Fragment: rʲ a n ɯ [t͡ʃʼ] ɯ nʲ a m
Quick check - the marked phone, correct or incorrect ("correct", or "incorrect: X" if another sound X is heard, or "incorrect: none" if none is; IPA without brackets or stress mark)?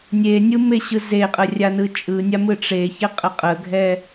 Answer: correct